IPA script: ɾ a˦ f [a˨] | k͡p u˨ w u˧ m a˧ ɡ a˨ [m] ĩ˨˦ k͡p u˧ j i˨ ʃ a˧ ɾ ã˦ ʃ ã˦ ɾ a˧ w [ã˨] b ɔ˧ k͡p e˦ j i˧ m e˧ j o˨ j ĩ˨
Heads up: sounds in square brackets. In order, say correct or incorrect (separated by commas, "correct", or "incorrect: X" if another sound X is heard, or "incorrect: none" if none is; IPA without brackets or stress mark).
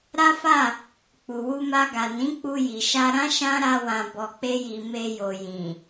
incorrect: a˦˨, incorrect: n, correct